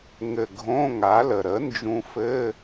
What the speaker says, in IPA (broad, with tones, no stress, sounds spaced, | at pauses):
ŋ ɘ˧˩ ɡʱ õ˧˥˧ ŋ a˩˥ l ə˩ ɾ ə˩˥ n d͡ʒ ũ˧ f ɘ˧˥˧